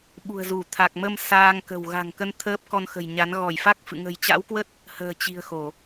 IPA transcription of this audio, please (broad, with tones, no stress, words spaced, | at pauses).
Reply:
ɓṳ˨˩ə̯zu˧˩ t̪ʰa˨˩k̚mə˧m saː˧ŋkə̤˨˩w ɣa̤˨˩ŋ kə˧n t̪ʰəː˦˥p̚ kɔ˧nxə̤˨˩jɲa˨˦n ɣɔ˧˩jfa˦˥k̚ fɨ̰˧˨ ŋə̤˨˩jt͡ɕa̰˧˥wkwə˦˥t̚ | hə̤ː˨˩t͡ɕi̤˨˩ə̯ xo˧˩˨